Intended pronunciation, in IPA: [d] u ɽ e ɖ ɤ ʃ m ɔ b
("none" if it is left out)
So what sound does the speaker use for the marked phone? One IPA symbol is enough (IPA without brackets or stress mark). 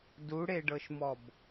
d